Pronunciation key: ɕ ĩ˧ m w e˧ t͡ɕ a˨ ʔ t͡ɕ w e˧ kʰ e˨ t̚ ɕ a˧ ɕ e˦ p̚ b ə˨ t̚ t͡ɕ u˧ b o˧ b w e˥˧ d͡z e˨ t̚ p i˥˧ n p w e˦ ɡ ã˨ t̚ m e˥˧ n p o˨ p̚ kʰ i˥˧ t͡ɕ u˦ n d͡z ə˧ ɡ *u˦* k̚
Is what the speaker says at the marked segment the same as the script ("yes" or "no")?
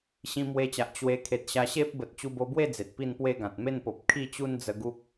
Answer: yes